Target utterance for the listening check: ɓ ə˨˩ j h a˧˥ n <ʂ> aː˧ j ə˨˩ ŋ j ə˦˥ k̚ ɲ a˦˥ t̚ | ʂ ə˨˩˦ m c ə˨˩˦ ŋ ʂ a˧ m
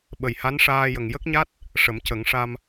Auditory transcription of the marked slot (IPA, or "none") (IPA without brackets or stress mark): ʂ